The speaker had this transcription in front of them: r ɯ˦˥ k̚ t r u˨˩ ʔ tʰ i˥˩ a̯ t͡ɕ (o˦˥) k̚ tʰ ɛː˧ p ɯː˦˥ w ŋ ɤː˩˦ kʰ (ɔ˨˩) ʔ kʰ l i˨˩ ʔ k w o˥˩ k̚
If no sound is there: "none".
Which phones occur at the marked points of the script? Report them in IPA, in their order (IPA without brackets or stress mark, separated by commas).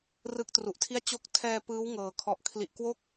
o˦˥, ɔ˨˩